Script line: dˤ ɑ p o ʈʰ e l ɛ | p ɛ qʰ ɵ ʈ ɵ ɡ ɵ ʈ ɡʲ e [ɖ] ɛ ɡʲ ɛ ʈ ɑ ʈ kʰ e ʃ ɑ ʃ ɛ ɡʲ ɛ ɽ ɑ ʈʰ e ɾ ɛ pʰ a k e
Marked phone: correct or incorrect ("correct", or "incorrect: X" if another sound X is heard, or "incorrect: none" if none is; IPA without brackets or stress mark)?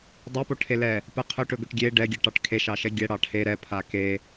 correct